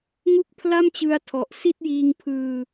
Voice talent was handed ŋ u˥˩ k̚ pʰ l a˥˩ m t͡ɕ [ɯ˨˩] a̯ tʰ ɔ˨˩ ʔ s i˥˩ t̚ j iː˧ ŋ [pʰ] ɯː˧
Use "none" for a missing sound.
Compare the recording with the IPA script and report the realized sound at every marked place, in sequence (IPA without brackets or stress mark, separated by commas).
ɯ˧, pʰ